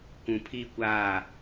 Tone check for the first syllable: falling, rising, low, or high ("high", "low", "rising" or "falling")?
low